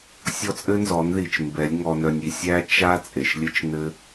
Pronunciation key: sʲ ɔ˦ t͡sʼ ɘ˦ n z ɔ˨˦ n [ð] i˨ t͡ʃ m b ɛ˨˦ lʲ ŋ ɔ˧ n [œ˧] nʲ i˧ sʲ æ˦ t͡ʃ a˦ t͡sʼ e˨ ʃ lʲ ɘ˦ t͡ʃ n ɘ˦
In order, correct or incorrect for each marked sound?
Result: correct, correct

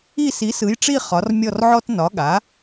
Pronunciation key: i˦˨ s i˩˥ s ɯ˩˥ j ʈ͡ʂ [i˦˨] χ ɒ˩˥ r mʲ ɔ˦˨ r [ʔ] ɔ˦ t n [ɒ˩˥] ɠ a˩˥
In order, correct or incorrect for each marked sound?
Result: correct, incorrect: ʕ, correct

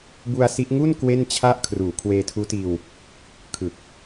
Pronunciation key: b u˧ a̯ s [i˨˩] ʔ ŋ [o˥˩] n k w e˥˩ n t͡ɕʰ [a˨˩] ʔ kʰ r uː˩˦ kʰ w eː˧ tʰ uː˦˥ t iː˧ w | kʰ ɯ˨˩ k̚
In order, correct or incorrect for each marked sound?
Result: incorrect: i˦˥, incorrect: u˥˩, incorrect: a˥˩

